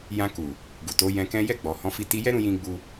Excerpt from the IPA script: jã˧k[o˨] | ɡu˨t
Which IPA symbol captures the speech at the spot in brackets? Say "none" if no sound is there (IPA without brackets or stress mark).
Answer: u˨